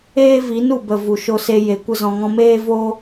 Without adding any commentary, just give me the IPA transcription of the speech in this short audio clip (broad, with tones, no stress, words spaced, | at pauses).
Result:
eː˦vi˨˦nu˨bə˨ vu˨ʃo˧se˧ je˨kʷə˦zɔ̃˧ŋɔ̃˦ meː˦vo˦